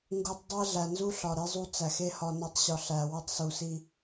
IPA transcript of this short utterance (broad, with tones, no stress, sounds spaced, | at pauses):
ŋ ɡ u˨ tˤ dˤ æ˦ ɮ æ˨ n z u˦ ɬ ɒ˨ ɾ i˦ zˤ u˦ t͡s æ˨ x e˦ h ɒ˨ n o˨˦ tˤ ɕ ɒ˨ ɬ æ˨ w o˦ tˤ s u˨ s i˦